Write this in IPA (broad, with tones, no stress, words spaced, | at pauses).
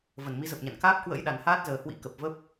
və˧˩nmi˨˦zə˨˩p̚ɲa̰˧˨n kaː˦˥p̚kwə̰˧˥j ɗa˨˩nhaː˦˥t̚zəː˨˩hwḭ˧˥ kə˨˩p̚və˦˥p̚